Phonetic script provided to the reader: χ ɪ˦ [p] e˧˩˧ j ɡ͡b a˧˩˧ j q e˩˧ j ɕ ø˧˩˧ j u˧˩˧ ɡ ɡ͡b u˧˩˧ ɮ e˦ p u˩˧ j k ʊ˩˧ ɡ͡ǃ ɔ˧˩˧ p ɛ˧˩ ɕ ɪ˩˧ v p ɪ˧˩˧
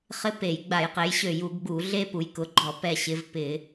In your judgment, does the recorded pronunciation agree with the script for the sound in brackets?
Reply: yes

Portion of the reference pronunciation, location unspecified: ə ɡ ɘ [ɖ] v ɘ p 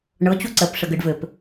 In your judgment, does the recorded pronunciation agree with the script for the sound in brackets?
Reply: yes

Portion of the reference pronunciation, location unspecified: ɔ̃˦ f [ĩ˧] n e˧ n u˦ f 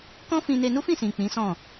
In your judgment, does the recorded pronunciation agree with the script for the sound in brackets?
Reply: yes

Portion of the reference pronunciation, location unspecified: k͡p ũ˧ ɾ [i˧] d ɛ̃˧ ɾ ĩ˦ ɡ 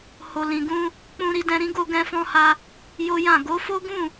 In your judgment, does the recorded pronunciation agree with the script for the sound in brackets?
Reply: yes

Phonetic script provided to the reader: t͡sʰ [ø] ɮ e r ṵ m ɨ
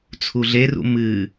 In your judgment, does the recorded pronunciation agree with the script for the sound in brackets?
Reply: no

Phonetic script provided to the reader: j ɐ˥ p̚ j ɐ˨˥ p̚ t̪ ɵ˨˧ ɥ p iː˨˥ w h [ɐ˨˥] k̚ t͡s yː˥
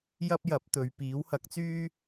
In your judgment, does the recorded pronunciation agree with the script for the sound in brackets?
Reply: yes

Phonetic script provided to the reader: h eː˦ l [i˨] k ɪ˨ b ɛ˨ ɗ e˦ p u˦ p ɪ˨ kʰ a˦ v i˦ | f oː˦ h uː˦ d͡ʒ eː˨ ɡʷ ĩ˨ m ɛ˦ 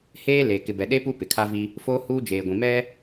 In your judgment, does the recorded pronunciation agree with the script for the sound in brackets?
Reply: no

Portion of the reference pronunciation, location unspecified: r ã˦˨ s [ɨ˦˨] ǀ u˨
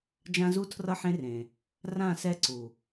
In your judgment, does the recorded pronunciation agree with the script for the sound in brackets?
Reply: no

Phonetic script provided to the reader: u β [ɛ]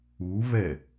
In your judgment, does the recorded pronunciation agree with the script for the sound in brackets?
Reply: yes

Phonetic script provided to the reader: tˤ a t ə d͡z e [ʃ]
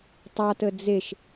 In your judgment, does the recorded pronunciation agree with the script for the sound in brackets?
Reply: yes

